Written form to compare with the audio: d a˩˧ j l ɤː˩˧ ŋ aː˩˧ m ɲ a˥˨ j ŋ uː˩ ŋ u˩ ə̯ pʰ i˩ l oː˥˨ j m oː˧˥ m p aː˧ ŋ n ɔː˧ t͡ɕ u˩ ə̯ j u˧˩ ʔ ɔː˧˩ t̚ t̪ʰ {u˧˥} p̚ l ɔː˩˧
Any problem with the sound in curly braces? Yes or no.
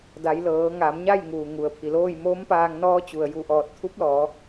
no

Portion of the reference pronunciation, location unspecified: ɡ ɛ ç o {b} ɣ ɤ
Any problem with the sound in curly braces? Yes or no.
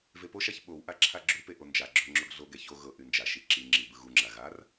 yes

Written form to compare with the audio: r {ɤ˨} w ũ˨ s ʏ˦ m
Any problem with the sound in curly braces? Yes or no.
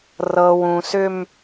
no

